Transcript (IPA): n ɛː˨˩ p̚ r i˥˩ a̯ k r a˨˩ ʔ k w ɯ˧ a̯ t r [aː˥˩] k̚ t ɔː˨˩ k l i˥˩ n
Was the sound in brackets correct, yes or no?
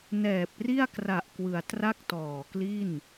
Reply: no